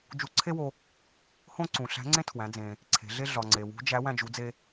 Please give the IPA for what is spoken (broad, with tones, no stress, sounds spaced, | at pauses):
d͡ʒ u˧˥ ǀʰ e˥ w o˧ | h õ˥ ǀ ũ˩ ɬ æ̤˧˥ ŋ͡ǀ ẽ˥ tʰ w æ̃˩˧ d͡z ẽ˩ | ǀʰ e̤˩˧ ɮ e˥ ɮ ɒ˩ ŋ͡ǀ e˩ w ṳ˧˥ d͡ʒ æ˧˥ w æ̃˧ d͡ʒ u˩˧ d͡z e˧